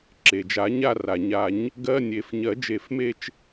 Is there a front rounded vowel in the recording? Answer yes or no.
no